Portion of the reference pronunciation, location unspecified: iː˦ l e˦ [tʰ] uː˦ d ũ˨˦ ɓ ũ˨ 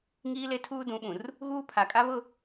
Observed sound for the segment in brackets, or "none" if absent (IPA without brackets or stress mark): tʰ